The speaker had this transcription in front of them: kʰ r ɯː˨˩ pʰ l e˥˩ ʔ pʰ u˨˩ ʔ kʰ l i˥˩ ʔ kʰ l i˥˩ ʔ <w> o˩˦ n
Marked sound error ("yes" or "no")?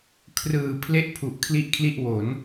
no